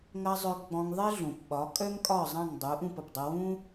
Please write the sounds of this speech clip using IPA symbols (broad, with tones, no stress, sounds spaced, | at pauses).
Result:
ŋ ɐ˧ zˤ œ˧ ɡ͡b ɔ̃˧ ŋ ðˤ e˥ ɮ ũ˩ p ɓ ɒ˩˥ kʼ œ˥ ŋ kʼ ɒ˥˩ zˤ ɐ̃˥˩ ŋ dˤ u˩˥ ʔ ũ˥˩ p ə˩ p dˤ ə˧ w ũ˥